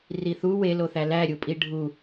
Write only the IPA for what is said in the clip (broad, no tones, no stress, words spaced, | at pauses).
riθu weloθæ læɾʲupʼi ɖʱu